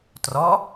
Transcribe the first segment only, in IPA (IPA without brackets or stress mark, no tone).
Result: t